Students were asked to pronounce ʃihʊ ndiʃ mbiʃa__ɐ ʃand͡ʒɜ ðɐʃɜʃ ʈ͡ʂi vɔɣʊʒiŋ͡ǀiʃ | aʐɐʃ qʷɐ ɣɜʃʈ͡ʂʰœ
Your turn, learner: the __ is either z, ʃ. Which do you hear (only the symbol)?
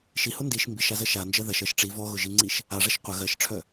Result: z